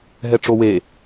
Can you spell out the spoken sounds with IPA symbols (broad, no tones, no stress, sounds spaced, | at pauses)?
ɦ ɛ ʈ͡ʂ o w e